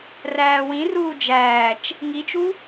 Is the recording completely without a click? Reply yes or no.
yes